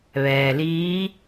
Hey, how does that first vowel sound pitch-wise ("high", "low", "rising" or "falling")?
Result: low